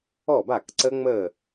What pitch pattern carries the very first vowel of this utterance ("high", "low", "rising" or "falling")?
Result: falling